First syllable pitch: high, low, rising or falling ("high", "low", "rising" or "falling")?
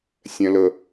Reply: low